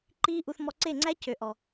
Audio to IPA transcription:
ǃ iː˦ ʔ u˧ θ m ɔ˧ ǀ e˦˨ ŋ͡ǀ æ˦ c ø˨ ʔ ɔ˨

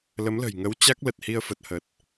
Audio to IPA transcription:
l ə˨˦ m l ə̤˨˩ j ŋ ə˨˦ w t͡ɕ a˦˥ k̚ l ə˨˩ t̚ h i˧ ə̯ f ə˨˩ t̚ h ə˨˩ t̚

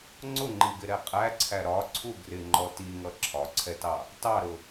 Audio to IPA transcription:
ŋ͡ǀ ʊ ŋ͡ǃ i ɡ ɪ ɾ ɛ qʼ æ ǀʰ æ ɾ ɒ ǀʰ u ɡ r ɪ ŋ͡ǃ ɔ t i ŋ ʌ ǁʰ ɒ ǀʰ ɛ t ɑ | t ɑ ɾ ʊ

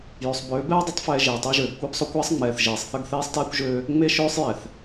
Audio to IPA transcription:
j ø˨ sˤ b øː˨˦ b ɛː˦ dˤ ə˨˦ tˤ f ɛː˨ ʒ eː˨ tˤ e˦ ʒ øː˨ ɡ kʷ ɛ˦ b sˤ o˦ kʷ ɛː˦ sˤ ŋ͡m ɛː˨ θ ʒ eː˨ sˤ θ ə˦˨ ɡ θ eː˦ sˤ t eː˦ kʷ ʒ øː˦ | ŋ͡m e˦ ʃ øː˦ sˤ j ɛ˨ θ

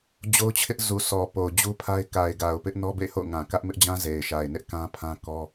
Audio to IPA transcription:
d͡ʑ o˦ ʊ̯ t͡ɕʰ ɪ˦ ʔ z u˨ sʰ ɔ˨ p o˨ ʊ̯ d͡ʑ u˦ pʰ a˦ ɪ̯ k a˨ ɪ̯ ɡ a˨ ʊ̯ p ɪ˦ ʔ n ɔ˦ b ḛ˦˨ ɪ̯ h o̰˦˨ ʊ̯ ŋ ã˨ k ä˦ ʔ m ɪ˦ ʔ d͡ʑ ã˦ z e˨ ɪ̯ ʃ a˨ ɪ̯ n ɪ˦ ʔ k ã˦ pʰ ã˦ k ɔ˦

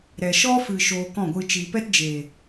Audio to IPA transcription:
ɾ ɛ˨ ʃ ɔ˧ f ɨ˨ ʃ oː˧ k ɔ̃˦˨ ɡʷ ɨ˧ t͡ʃ i˨ p ɛ˦ t d͡ʒ eː˨

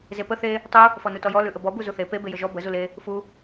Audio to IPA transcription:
z e p ə θ e | tˤ u | f ɔ n u t ɔ j ɔ l ʉ ʔ ə b ɔ b u z u θ e p e b e j ə ʒ ɔ b ə z u l e | f u

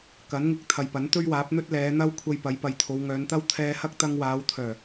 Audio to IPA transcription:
k ɐ˨˥ n ŋ ɪ˧ k̚ t̪ʰ ɐ˨ j p ɐ˨˥ n t̪ ɵ˥ ɥ w aː˨˥ p̚ n̪ ɵ˥ t̚ l ɛː˨˧ n̪ ɐ˥ w kʷʰ ɐ˧ j p ɐ˨˥ j p ɐ˨ j t̪ʰ o˨˧ w ŋ œː˨˧ n t̪ ɐ˥ w t̪ʰ ɛː˧ h ɐ˥ k̚ t̪ ɐ˧ ŋ w aː˨˧ w t̪ʰ œː˨˩

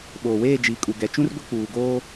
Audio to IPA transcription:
ɓ oː˨ w eː˦˨ d͡ʒ i˨ kʼ u˨ ɡ ɛ˨ t͡ʃ ũ˦ r ɡʷ ɪ˦ k͡p uː˨ ɡ oː˦

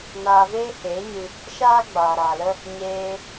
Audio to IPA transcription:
n aː˧ v eː˦ h eː˨˦ ɲ ɨ˧ | ʃ aː˦ ɡ͡b aː˨ ɾ aː˨ l ə˦ | ɲ eː˧

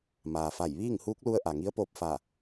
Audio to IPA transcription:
m aː˩ f a˧˩ j ʋ iː˥˨ ŋ h uː˧˥ k̚ l u˧ ə̯ ʔ a˩ ŋ i˧˥ ə̯ p oː˧ p̚ f a˧˩

